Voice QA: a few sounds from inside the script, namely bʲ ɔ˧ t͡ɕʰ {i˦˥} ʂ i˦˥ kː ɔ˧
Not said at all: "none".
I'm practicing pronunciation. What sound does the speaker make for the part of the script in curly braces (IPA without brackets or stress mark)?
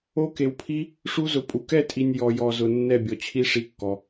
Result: i˦˥